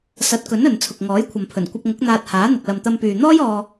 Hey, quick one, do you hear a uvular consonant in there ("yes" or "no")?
no